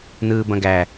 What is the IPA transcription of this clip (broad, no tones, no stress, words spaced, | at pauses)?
nɯːbɐ̃ɡæ